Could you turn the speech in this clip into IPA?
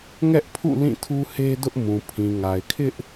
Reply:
ŋɛ˦ʔpʰṵ˦˨ lĩ˦˨tʰu˦he˦dʊ˦ʔ mũ˨pʰĩ˨ŋa˨ɪ̯kʰɪ˦ʔ

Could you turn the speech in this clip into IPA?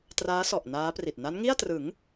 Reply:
traː˦˥sɔ˨˩ʔ naː˦˥pri˨˩t̚ na˦˥nŋi˥˩a̯trɯ˩˦ŋ

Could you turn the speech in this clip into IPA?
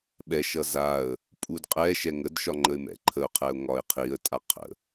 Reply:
ɓɛʃʌ zaə̯ | pʼudqʼɛʃɛ ŋədʃɒ ŋ͡ǃəɪ̯mɛ̰ǃʰəʊ̯qʰɛʊ̯ ŋɒɪ̯qʰiə̯ tʼaqʰə̰

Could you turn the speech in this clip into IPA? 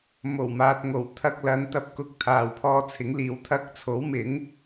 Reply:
mo˨˩wmaː˨t̚ŋo˨˩w t̪ʰɐ˧k̚ lɐ˨˧nt̪ɐ˨˥p̚kʊ˨˥k̚ t̪ʰaː˨wpʰɔː˧t͡sʰɪ˨˥ŋliː˨˥w t̪ʰɐ˧k̚t͡sʰo˨˥wmɪ˨˥ŋ

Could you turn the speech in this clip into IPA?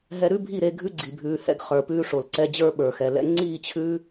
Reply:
ɦɛ˧ɾʉ˦bʱi˦˨ɾe˧ ɡʱʉ˦ɡ͡ǀi˨bʱʉː˨hɛ̰˧ɡ χə˞˨ pʉː˧ʂo˨lǀɛ˧d͡ʑə˞˦ ɓə˞˨xɛ˨lɛ̰˦ ŋ͡ǀiː˦˨t͡ɕʰʉ˦

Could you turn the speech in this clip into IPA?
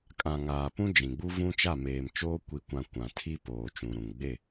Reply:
kʼã˨ ŋaː˨pũ˦d͡ʒĩ˨ɡ͡bu˦ vũ˦t͡ʃa˦˨ meː˨mt͡ʃoː˦ kʷi˨kʷã˨ kʷã˨tʰi˦ poː˨t͡ʃũ˨ɾũ˨ŋ ɡ͡be˦˨

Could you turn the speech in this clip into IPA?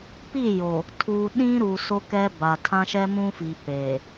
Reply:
pi˦˨jo˨ | tʰuː˨ ɗĩ˦ɾu˨ so˦kɛ˦ba˨ tʰã˦ʃɛ˦mũ˦fi˨ peː˨

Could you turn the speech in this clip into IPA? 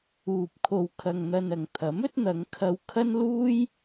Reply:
uː˧p̚kʰo˧w kʰɐ˧ŋn̪ɐ˧nɐ˨ŋ t̪ʰɐ˨˥mɵ˥t̚n̪ɐ˨˧ŋkʰɐ˧w kʰɐ˥nluː˥j

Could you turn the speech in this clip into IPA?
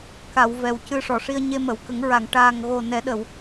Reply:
ka˨˩˨w vɛ˨˩wcɨ˧ʂɔ˨˩˨ʂi˧ə̯ ɲe˧mə˨˩˨wkə˨˩˦ŋ ɹa˨˩˨ŋ ʈaː˨˩ŋɣo˨˩ nɛ˨˩˦ɗə˨˩˨w

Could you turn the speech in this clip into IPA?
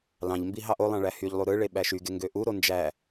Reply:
lɑ̃ʎmbi ɦɑʔolˠɑ̃ ɭæhyʎlˠu ɾɯɭe ɓæʃyɡe ŋɡøʔuɾo nd͡ʒæ

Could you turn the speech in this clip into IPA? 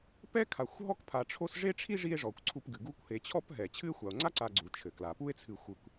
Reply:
pɛ˥ kʰa˨xʷɦɔ˥kpʰa˨ ʈ͡ʂʰo˥s ʐe˥ʈ͡ʂʰi˥ ʐi˦e̯ʐɔ˩kʷ ǀʰu˦pɡɨ˩ ɡu˦kʷhe˨t͡ɕʰɔ˥p ɦɛ˩ t͡ɕʰɨ˦e̯xʷa˩o̯ŋ͡ǀa˥ǀa˨ ɡ͡ǀu˩ t͡ʃʰɘ˩kla˩ pu˥e̯t͡sʰɨ˨xʷɨ˨kʷ

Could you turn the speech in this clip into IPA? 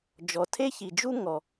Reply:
d͡ʒɔ˩tʰe˥çi˩d͡ʒu˥ ŋɔ˩

